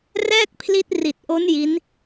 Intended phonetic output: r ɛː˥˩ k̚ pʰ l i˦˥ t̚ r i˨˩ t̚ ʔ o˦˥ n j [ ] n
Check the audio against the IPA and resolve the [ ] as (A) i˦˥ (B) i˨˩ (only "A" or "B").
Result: A